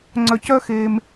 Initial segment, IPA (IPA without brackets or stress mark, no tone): ŋ͡ǀ